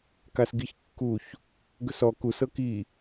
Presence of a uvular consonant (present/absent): absent